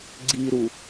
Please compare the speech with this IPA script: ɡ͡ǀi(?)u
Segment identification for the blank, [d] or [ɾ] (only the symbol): ɾ